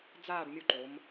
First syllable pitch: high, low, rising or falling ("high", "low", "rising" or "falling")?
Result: falling